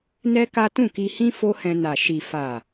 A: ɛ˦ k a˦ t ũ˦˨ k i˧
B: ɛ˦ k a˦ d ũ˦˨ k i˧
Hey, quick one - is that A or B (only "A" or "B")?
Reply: A